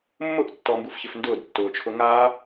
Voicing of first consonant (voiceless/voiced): voiced